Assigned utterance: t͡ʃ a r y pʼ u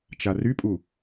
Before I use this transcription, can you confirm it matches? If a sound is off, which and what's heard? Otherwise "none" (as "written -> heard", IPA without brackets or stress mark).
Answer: none